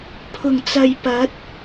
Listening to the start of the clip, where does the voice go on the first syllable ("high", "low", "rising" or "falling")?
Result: low